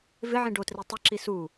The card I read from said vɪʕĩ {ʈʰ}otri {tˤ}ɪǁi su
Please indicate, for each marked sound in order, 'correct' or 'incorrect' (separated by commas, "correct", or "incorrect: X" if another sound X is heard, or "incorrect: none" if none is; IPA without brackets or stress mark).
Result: incorrect: ɖ, correct